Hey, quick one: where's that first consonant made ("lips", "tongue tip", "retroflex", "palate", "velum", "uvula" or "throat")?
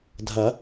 tongue tip